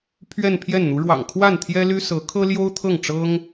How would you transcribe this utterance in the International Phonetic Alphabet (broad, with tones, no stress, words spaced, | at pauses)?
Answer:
pʰɥɛ˥˧npʰjɛ˥˩nn̪u˧˥ ɻwɑ̰˨˩ŋkʰwa˥˩n t̪ʰjɛ˥ly˥sɤ˧˥ kʰɤ˥ljo˥ʊ̯t̪ʰɤ˥˩ŋ ʈ͡ʂɤ˥ŋ